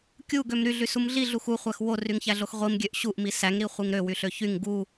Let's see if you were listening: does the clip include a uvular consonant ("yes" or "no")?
yes